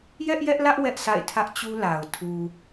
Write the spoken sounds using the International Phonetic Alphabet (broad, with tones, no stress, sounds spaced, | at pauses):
j ɛ˦ ʔ j ɛ˦ ʔ l ä˦ ʔ w ɛ˦ ʔ s a̰˦˨ ɪ̯ tʰ ä˦ ʔ t͡ɕ u˦ l a˨ ʊ̯ tʰ u˨